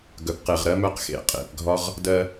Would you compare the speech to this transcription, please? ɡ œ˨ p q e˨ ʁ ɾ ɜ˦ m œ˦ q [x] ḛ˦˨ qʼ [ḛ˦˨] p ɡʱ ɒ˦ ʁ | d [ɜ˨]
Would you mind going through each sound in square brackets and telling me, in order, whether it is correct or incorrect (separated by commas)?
correct, correct, incorrect